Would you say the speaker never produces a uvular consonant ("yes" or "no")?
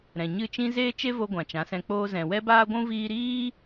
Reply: yes